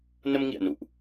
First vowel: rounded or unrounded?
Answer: unrounded